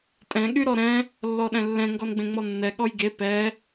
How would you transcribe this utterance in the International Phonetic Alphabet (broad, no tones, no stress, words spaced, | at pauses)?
tʼɛ̃ ɠyɾɔɾɛ̃ | lːɔɗɛ̃lːɛ̃ ŋɡɔnɡ͡bẽŋ͡mɔnːɛ ɠɔjɡe pɛ